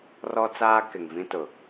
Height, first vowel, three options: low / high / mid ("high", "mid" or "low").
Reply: mid